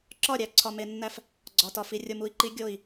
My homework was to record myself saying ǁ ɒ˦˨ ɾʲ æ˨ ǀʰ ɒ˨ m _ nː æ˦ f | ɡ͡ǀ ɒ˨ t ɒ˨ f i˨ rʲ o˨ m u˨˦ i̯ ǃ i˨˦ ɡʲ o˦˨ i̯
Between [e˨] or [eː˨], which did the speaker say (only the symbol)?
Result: e˨